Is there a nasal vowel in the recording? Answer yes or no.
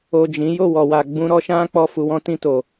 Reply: yes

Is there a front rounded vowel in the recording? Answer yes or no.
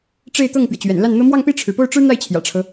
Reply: no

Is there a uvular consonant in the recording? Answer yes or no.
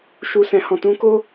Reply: no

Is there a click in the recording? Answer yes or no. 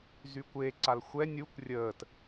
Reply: yes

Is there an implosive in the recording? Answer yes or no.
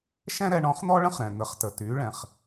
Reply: no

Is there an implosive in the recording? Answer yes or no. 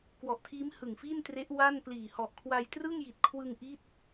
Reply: no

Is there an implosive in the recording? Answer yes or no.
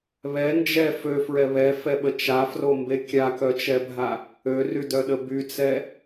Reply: yes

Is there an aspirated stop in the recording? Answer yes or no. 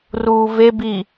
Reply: no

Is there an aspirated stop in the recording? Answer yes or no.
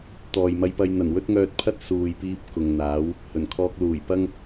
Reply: yes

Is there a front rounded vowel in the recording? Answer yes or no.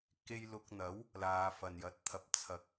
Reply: no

